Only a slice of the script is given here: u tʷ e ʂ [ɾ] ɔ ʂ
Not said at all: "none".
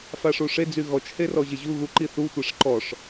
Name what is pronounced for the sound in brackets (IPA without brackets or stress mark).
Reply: ǃ